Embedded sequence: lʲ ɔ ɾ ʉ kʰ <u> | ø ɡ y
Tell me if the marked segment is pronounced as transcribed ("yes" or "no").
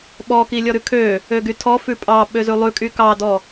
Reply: no